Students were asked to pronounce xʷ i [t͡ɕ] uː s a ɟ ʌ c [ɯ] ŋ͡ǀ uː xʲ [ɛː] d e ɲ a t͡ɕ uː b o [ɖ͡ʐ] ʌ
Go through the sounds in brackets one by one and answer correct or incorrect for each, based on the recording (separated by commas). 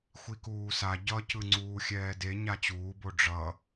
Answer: incorrect, correct, correct, correct